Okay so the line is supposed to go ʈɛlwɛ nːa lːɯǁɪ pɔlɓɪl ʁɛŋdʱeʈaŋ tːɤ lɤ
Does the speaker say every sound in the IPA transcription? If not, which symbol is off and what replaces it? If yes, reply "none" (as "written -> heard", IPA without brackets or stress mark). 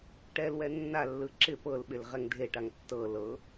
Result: ɔ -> ɤ